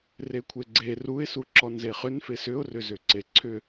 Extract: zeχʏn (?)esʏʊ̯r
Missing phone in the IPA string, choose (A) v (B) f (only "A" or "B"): B